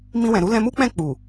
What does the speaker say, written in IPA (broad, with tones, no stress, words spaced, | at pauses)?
mĩ˧wɛ̃˨ɾu˨˦ lɛ̃˧mu˦k͡pɛ̃˦˨ k͡pu˨